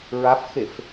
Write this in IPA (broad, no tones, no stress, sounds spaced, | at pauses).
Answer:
ɹ a f x e f